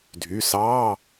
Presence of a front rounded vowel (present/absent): present